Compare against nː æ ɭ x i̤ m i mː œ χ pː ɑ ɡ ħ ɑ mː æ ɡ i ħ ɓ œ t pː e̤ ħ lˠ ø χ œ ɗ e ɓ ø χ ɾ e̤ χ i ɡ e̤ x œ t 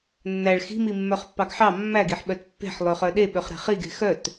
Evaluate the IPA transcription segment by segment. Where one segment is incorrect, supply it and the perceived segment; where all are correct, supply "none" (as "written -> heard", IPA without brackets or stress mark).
none